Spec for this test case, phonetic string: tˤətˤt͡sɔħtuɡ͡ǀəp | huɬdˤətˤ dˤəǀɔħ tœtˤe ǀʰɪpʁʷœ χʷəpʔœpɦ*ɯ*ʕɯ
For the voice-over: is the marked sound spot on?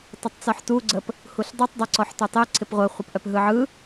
yes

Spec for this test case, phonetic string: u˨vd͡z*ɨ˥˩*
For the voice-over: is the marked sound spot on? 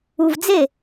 no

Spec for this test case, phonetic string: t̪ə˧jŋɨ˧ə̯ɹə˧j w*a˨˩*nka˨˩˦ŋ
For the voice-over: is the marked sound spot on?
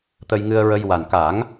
yes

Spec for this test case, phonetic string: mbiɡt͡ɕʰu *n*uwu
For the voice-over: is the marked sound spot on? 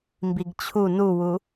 yes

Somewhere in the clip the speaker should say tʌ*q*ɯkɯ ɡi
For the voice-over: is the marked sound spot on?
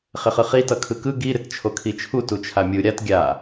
no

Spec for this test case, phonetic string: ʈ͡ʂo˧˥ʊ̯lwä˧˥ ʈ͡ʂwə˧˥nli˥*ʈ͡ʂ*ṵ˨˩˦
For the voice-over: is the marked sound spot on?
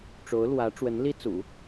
no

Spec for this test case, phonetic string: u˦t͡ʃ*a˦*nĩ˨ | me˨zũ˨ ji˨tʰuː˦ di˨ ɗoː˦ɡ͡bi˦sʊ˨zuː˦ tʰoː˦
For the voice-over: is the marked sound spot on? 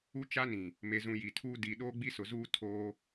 yes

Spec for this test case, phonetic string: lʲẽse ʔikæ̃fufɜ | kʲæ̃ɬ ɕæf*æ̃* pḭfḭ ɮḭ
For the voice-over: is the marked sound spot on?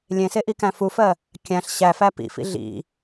no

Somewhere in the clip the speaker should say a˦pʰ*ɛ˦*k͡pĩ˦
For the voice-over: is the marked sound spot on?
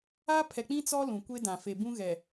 no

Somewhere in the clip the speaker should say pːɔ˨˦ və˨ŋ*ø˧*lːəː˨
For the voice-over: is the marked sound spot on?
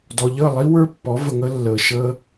no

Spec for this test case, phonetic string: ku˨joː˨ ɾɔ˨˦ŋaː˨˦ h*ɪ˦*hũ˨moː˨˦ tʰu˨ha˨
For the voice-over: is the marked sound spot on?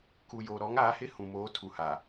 yes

